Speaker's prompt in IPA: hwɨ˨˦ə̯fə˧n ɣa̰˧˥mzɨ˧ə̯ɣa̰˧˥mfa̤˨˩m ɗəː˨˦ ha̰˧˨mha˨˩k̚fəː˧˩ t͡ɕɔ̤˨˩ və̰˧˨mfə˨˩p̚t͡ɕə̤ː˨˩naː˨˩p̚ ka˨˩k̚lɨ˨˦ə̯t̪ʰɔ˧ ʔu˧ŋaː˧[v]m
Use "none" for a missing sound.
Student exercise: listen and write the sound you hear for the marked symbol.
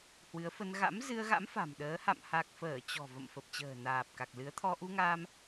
none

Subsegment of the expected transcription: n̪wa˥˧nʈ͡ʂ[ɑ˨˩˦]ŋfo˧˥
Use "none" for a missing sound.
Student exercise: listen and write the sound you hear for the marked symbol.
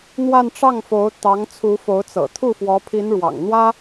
ɑ˥˩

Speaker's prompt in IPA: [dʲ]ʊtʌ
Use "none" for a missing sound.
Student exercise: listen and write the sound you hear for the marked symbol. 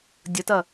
dʲ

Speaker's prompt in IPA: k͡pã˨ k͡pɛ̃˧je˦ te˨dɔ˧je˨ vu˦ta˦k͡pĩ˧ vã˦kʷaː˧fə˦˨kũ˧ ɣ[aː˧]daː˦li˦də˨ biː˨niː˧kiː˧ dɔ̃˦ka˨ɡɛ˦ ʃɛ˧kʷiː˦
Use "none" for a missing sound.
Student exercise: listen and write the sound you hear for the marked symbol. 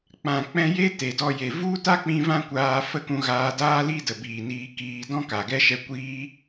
aː˧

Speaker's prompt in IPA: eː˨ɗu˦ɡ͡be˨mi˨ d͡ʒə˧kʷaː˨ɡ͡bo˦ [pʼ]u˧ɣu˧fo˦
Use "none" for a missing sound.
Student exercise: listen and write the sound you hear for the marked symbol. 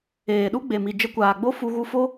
f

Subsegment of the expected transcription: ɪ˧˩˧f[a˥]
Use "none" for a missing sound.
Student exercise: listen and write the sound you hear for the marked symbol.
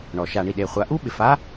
a˥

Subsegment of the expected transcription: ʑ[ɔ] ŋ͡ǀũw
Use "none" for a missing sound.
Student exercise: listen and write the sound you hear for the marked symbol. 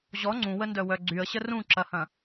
ɔ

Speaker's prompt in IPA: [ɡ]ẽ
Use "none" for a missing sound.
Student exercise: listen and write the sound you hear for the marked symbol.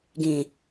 ɡ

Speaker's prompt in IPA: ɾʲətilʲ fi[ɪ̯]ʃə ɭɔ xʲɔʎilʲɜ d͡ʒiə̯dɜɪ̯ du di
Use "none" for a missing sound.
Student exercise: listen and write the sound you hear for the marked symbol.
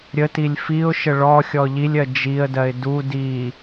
ʊ̯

